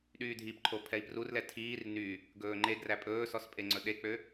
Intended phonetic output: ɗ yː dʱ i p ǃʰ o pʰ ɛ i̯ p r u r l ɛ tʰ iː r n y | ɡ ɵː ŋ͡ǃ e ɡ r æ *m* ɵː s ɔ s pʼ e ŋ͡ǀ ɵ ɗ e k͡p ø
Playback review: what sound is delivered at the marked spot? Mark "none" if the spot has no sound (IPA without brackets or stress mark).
pʼ